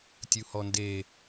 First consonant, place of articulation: alveolar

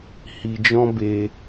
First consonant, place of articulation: glottal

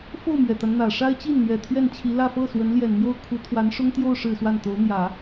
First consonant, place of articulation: labial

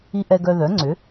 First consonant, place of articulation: glottal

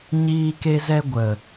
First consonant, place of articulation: palatal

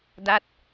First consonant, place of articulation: alveolar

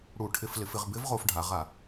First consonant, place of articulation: retroflex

